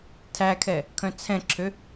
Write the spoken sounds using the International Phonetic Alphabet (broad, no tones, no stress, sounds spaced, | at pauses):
tʰ æ kʰ ɛ | kʰ œ̃ t͡sʰ ɛ̃ ǁʰ ø